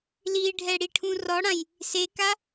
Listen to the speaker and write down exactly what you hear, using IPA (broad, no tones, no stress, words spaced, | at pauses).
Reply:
liɖʱɛ ɽiʈʰũrɔɽãj | seka